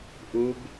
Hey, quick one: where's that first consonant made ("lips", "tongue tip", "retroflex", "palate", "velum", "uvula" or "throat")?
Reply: throat